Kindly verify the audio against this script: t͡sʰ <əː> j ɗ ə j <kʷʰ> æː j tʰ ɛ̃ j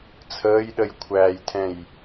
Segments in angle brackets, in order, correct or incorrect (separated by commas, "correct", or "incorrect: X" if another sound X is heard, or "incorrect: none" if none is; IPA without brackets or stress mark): correct, correct